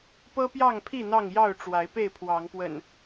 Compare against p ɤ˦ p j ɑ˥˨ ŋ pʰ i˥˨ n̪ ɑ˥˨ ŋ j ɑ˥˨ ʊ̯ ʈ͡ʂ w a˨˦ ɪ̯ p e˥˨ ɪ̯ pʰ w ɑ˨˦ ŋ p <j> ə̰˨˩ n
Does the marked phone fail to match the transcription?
yes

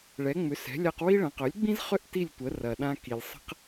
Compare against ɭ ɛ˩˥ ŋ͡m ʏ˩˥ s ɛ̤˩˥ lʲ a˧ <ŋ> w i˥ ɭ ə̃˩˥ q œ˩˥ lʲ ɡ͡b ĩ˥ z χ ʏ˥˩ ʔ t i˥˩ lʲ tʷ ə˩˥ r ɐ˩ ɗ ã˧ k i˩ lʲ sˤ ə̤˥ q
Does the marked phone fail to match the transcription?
yes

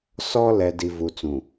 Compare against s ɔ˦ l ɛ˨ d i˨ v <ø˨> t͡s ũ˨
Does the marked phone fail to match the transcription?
yes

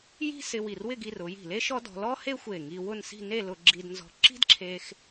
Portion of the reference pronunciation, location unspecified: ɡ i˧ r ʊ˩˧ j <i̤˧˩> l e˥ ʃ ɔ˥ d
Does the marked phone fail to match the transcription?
no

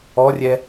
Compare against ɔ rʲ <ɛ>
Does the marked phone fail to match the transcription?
no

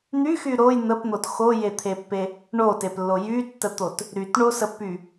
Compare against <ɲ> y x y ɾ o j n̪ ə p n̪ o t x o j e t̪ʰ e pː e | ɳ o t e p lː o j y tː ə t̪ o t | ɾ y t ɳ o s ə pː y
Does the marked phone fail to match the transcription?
yes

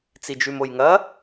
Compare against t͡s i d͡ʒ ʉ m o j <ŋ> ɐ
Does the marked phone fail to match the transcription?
no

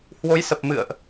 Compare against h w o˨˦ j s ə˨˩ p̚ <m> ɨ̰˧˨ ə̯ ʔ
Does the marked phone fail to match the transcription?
no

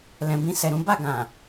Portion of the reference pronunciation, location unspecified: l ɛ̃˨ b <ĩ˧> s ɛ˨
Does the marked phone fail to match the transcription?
no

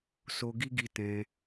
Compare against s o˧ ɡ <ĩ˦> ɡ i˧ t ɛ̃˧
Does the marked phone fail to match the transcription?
yes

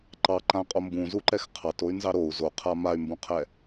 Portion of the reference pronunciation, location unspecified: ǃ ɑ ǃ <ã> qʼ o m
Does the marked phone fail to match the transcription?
no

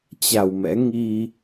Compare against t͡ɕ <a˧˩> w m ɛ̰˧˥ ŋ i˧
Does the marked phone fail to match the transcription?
no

